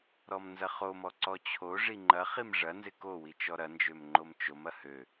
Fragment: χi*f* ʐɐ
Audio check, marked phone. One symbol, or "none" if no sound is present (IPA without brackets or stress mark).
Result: m